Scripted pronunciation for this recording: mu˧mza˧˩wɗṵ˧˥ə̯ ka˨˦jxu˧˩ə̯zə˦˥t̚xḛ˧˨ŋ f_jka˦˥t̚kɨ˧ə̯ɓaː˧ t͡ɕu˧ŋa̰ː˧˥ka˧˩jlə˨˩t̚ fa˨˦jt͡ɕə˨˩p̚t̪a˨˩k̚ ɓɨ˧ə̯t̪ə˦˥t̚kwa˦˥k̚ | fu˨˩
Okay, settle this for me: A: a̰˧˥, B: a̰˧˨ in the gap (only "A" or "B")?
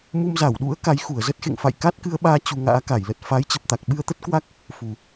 B